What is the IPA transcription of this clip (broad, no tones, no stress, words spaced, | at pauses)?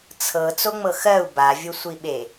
t͡sʰɤ t͡soŋ͡mɤxɜu̯ bavʲosʷiɓe